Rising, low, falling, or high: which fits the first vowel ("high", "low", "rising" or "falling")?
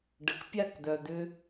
low